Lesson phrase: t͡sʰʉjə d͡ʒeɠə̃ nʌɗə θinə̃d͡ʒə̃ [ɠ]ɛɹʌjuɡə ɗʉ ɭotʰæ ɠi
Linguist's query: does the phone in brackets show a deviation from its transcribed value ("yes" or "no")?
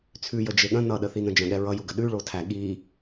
no